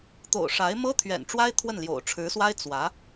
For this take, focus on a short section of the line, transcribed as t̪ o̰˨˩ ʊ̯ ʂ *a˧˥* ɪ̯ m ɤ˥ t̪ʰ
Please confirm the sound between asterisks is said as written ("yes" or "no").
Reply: yes